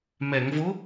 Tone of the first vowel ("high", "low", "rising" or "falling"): low